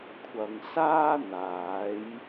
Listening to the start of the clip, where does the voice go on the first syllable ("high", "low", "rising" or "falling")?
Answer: low